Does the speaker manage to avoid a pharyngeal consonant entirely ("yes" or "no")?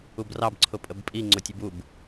yes